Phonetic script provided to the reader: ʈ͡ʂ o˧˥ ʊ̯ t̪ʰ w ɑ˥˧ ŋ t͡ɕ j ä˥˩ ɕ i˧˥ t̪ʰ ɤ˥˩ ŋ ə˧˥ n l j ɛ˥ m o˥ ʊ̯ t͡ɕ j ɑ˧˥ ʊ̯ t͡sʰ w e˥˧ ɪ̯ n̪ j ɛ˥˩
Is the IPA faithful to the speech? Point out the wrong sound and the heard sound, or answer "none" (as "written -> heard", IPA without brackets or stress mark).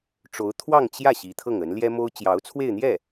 none